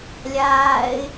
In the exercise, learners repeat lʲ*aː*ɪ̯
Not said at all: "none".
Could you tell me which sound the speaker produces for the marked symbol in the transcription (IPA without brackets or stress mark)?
aː